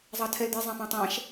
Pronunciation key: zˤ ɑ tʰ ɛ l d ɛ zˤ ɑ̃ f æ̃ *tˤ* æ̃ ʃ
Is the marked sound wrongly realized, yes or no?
no